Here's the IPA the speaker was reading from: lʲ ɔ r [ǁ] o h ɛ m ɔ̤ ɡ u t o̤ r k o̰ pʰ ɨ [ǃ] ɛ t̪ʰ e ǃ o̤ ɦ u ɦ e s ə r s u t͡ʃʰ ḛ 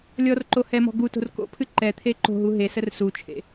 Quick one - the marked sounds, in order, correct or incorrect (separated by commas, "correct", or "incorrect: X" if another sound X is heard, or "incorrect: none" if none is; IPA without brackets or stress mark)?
incorrect: ǃ, correct